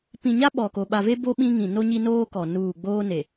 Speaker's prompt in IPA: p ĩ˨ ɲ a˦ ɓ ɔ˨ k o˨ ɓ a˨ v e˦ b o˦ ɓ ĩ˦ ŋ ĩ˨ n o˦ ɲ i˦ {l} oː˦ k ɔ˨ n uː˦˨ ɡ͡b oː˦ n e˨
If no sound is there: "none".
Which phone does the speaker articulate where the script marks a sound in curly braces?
n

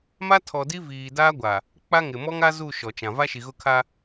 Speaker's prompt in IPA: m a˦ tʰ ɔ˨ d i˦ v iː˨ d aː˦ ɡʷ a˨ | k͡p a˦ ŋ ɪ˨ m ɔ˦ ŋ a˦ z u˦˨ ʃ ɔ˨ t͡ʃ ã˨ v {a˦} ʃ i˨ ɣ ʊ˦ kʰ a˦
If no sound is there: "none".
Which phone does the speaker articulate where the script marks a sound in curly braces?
a˦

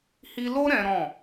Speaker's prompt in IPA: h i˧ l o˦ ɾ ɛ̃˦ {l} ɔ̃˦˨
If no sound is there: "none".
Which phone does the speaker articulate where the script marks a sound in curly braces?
ɾ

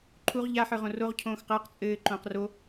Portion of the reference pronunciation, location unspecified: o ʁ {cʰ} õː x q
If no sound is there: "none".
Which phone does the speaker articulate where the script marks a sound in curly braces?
cʰ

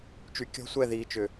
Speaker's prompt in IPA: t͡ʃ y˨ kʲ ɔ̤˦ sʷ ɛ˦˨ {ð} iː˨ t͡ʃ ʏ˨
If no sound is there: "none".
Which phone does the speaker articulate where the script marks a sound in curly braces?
ð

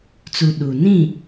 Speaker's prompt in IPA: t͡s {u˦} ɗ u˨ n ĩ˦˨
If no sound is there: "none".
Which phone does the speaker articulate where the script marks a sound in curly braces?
u˨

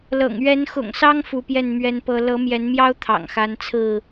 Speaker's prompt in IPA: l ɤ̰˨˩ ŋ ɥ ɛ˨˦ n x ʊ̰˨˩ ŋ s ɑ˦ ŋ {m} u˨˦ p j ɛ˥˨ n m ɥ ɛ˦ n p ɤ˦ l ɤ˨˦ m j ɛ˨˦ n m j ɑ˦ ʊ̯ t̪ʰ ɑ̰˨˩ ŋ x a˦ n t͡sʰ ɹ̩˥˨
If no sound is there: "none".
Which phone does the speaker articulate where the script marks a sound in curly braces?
f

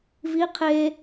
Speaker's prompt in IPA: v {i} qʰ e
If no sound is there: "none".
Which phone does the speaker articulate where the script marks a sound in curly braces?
i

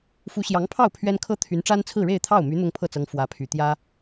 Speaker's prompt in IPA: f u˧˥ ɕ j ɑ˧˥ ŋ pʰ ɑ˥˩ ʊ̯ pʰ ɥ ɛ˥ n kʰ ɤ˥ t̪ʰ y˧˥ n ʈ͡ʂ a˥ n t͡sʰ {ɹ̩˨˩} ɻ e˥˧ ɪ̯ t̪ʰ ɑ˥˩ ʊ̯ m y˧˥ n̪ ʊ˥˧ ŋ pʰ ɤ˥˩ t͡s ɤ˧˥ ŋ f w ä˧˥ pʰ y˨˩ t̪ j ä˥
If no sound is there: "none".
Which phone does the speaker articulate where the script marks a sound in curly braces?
ɹ̩˥˧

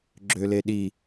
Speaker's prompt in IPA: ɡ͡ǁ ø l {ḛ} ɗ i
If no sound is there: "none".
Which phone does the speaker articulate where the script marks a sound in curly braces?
e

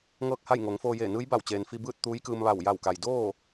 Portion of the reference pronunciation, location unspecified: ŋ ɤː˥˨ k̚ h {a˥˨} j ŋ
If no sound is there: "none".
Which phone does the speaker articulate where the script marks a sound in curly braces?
a˥˨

